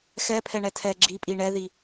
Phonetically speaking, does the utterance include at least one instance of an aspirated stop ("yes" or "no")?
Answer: yes